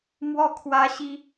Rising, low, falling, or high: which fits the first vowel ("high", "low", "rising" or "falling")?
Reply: falling